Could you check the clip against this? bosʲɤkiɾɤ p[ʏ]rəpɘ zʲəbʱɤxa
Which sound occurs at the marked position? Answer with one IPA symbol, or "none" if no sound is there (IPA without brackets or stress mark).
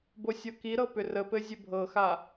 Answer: ʏ